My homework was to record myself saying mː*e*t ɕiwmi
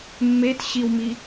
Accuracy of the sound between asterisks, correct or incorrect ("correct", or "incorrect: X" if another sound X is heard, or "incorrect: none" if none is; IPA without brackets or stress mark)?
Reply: correct